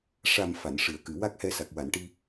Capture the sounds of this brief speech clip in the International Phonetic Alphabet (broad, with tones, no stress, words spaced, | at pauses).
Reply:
ʂa˨˩m fa˨˩˨nʂɨ˨˩˨ə̯kɨ˨˩˨ wa˦˥k̚hɛ˧sa˨˩k̚ wa˨˩˨nʈi˧